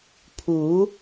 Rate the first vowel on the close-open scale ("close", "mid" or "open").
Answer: close